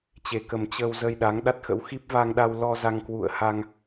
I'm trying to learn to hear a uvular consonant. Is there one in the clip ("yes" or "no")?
no